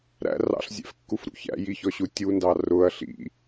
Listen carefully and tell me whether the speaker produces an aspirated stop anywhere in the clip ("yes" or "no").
no